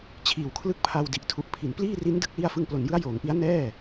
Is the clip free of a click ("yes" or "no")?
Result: yes